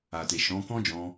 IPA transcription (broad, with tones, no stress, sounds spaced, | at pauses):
a˨ t e˨ ʃ ɔ̃˨˦ k ɔ̃˦ d͡ʒ ɔ̃˧